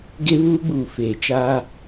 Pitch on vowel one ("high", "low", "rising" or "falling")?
high